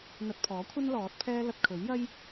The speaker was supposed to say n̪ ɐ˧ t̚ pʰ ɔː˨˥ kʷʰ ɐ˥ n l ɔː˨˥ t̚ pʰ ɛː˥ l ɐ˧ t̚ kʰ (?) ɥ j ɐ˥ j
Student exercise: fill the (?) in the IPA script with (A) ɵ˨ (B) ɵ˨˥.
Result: B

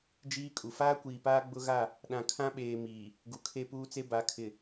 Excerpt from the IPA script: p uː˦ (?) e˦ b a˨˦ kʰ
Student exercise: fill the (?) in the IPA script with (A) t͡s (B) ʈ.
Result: A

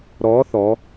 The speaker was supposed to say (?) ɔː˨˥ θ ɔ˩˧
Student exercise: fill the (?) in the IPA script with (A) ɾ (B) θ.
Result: A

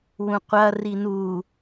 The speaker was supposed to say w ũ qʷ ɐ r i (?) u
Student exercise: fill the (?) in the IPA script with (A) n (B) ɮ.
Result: A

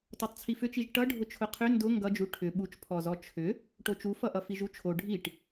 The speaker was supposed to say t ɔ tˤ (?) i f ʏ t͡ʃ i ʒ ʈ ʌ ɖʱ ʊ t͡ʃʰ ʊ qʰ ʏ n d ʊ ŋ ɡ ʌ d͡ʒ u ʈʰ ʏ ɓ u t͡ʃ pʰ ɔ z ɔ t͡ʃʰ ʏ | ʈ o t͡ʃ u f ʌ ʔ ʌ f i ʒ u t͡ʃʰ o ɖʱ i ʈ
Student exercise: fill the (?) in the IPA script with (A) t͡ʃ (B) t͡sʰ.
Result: B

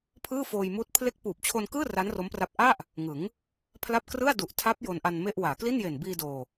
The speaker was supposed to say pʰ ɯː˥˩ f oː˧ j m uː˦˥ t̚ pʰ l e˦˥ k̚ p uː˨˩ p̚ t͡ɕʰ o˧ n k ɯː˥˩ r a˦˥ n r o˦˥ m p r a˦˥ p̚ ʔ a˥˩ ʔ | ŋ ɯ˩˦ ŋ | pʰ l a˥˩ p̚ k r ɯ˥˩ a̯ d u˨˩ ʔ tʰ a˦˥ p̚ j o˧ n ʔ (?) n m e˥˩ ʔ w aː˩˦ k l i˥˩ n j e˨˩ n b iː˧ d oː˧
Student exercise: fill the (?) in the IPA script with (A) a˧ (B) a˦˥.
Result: A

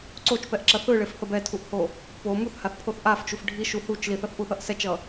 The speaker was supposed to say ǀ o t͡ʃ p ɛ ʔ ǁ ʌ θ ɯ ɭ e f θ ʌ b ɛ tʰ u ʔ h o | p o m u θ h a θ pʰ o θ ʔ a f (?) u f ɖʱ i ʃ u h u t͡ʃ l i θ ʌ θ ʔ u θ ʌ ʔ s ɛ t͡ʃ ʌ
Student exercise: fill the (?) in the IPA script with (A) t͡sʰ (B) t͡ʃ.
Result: B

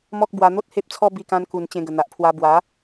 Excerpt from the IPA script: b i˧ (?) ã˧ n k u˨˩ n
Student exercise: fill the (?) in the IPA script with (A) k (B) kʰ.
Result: A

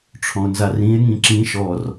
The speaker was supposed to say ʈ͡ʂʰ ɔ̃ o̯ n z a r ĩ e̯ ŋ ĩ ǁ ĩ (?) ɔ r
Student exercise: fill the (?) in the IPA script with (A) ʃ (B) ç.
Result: A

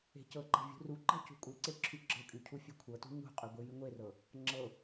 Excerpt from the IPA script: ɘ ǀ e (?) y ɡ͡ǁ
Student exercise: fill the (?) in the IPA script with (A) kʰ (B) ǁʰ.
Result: B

